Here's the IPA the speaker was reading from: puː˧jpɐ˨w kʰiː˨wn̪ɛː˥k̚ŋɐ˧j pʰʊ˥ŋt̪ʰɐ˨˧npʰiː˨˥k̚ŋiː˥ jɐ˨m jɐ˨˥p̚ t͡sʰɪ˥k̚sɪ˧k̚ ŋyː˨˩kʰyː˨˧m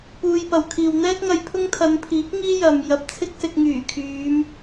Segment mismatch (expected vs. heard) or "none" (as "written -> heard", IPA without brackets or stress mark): none